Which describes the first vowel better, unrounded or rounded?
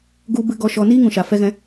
rounded